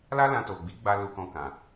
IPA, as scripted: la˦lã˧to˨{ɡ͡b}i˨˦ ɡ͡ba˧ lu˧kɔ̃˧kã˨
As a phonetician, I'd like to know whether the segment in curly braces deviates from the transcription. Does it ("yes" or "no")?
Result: no